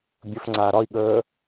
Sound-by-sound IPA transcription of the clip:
bʲəf ŋ͡ǀaːɾɒi̯ɠəː

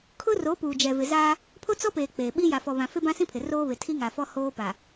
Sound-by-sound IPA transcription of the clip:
kʰʊ˦ro˨˦puː˨ d͡ʒɛ˨vɪ˨zaː˦ | pʰo˦t͡sɔ˦peː˨ k͡peː˨ɓi˦ ja˨fɔ˨βã˨ fe˦bã˦sĩ˦pʰɪ˨ roː˦βɪ˨ tʰi˦ŋa˨fɔ˦ hoː˦pa˨

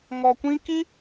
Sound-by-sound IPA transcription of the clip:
ŋɔ˧kʷĩ˦ ki˦

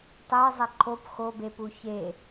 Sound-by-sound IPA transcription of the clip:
tˤɛe̯ zˤɛǃʰop xobepu çe

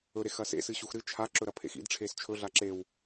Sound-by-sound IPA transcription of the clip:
ɵɾexɐ sḛsɨ ɕuxɾɨ t͡ʃʰa ǁɵɾɐpʰḛxḭd ʈ͡ʂʰest͡ʃʰɵ ɮaǁew

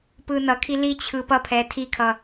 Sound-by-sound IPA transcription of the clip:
pɯnʌkʰi lit͡ɕʰɯ pʌpʰɛː tʰikʰʌ

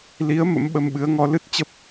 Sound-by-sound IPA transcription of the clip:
li˨˦ə̯ mə̰˧˥mɓə˧mɓɨ˨˦ə̯ŋɔ˧ lɨ˦˥t̚t͡ɕə˦˥p̚

